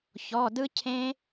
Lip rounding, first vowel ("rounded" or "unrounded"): rounded